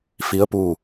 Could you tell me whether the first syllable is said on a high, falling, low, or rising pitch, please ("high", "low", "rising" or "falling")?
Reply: rising